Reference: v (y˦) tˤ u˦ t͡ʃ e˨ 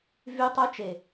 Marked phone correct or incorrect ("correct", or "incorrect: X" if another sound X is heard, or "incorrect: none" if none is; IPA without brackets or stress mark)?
correct